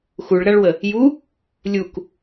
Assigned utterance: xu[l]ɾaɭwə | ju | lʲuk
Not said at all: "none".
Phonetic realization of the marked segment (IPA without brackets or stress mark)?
ɭ